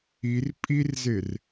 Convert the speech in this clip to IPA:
i r pʼ i r z e r

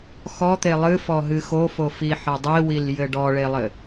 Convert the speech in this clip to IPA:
x ɔ t̪ e lˠ ɨ f ɔ ɦ ɨ x o f o f i ħ ɐ dˤ i w i l j ɘ ɖ ɔ ɭ e lˠ ɘ

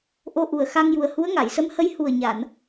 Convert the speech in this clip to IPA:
ʔ o˧ ʔ u˨˩ ə̯ x a˧ ŋ j u˨˩ ə̯ h u˧˥ ə̯ ŋ a˨˩˨ j s ə˧˥ m h ə˧˥ j h u˨˩ ə̯ ɲ a˨˩˨ n

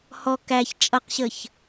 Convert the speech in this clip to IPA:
h ɔ k æ ç t͡ʃʼ ʌ q ɕ ə ç

